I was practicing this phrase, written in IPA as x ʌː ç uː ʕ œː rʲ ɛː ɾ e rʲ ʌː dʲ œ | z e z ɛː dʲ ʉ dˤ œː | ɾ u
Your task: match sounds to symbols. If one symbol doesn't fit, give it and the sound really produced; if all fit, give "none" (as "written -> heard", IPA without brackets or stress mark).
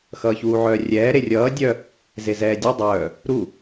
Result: none